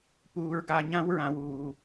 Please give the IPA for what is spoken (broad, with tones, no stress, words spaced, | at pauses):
puː˨˦ɹɡa˨˦ɲã˦˥w ɹã˨˦wuː˨